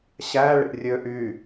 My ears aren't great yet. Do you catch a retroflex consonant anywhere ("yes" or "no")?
yes